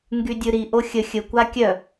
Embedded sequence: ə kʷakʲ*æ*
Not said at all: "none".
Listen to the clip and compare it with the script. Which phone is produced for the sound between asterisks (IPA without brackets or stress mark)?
œ